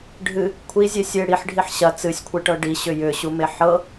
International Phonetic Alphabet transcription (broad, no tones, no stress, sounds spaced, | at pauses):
ɖʱ ɨ | kʷʰ i zʲ e sʲ e ɽ i ħ ɖʱ i ħ ɕ ɐ t͡s ɨ sʲ kʷʰ e ʈ ɤ ɖ i ɕ ʏ j ʏ ɕ u m e ħ ɤ